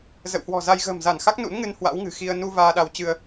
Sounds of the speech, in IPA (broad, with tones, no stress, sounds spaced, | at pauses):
z ə̰˧˨ w h w ɔ̤˨˩ z a˧ j ɣ ə̤ː˨˩ m z a˧˩ n x a˦˥ k̚ n ṵ˧˥ n ŋ ɨ˧ n h w a̰˧˥ w ŋ ɨ̤˨˩ x i˧ ə̯ n u˧ v aː˧ ɗ a˨˦ w t͡ɕ ɨ˧ ə̯